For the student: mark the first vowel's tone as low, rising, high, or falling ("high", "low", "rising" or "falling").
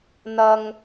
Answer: low